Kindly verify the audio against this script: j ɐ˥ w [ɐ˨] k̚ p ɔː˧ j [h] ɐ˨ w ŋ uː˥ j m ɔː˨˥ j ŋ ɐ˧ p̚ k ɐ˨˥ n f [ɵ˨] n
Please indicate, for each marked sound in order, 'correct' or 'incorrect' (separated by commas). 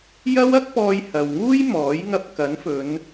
incorrect, correct, incorrect